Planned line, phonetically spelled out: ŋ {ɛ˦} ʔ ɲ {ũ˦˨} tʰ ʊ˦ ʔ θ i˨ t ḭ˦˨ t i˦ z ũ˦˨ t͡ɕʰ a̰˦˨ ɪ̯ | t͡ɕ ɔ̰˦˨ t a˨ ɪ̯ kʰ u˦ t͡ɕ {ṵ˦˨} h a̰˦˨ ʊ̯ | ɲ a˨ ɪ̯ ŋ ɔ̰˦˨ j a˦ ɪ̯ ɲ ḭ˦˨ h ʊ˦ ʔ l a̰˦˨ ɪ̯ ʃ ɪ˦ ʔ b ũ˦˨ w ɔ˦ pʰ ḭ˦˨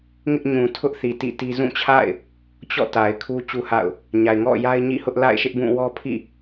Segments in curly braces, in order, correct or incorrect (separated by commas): incorrect, incorrect, incorrect